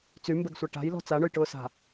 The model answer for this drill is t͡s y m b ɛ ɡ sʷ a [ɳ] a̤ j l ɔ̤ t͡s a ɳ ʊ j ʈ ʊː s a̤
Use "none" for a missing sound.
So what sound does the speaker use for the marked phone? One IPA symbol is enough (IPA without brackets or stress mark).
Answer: ʈ